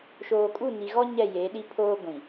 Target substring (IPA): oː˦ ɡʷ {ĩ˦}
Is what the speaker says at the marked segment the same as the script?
no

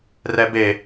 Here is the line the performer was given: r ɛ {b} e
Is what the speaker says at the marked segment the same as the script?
yes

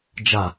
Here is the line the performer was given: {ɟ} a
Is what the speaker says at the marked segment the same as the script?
no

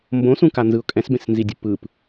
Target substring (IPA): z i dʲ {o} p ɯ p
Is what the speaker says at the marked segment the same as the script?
no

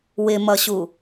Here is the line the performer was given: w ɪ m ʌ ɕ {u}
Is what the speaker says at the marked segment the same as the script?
yes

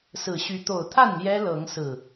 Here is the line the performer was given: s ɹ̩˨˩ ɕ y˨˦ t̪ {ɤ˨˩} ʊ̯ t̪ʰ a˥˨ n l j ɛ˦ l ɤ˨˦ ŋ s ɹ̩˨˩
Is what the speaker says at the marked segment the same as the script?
no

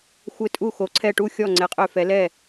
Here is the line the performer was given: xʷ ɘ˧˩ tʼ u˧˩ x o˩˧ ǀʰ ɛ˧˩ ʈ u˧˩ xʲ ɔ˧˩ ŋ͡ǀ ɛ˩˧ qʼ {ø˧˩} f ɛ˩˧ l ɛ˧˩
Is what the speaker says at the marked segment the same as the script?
yes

